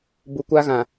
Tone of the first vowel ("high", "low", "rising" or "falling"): low